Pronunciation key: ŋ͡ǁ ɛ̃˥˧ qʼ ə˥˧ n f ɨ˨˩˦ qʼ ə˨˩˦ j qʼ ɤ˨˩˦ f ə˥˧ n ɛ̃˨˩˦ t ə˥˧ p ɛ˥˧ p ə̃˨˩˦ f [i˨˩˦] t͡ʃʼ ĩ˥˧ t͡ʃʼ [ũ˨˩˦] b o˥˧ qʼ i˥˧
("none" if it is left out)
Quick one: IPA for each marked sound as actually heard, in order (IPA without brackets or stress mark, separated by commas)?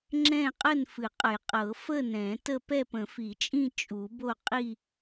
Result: i˨˩˦, u˨˩˦